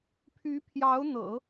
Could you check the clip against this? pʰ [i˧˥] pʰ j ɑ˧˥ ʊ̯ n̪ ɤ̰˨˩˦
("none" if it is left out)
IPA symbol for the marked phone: y˧˥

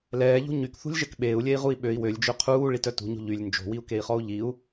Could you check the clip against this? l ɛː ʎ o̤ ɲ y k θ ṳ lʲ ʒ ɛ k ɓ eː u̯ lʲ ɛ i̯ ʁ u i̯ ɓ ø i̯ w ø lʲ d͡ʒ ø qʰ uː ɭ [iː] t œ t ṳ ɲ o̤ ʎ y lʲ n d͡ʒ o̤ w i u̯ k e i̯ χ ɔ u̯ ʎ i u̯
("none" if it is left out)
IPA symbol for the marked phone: i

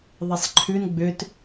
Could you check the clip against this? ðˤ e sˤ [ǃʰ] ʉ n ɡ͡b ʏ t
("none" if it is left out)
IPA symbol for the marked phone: ǃʰ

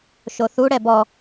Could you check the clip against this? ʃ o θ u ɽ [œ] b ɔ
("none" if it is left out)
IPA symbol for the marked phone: ɛ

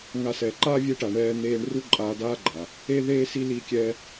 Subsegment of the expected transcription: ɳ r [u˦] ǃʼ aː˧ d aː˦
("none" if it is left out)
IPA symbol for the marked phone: u˦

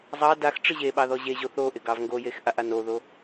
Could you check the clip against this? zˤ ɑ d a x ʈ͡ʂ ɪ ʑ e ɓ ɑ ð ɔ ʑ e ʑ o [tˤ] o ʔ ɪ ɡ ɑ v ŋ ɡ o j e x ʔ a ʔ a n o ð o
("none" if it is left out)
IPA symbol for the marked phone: θ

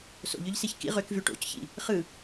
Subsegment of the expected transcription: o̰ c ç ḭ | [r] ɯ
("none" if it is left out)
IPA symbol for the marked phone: χ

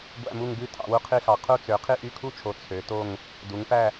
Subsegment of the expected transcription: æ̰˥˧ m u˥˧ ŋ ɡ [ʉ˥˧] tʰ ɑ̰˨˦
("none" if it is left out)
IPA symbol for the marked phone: ʉ˥˧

